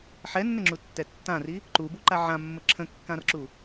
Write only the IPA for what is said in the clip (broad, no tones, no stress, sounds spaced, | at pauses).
ħ ɛ nː ə ŋ͡ǁ u tː ɛ tː ã r i | ǃ u b u ǃ a ʕ ã mː ə ǁʰ ə̃ kː ã r ǁ u